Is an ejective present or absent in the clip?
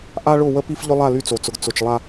absent